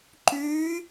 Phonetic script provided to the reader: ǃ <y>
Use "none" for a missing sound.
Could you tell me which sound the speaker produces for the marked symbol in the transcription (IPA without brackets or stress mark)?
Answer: y